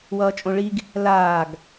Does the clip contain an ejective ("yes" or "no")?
yes